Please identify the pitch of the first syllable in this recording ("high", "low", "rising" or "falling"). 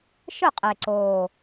falling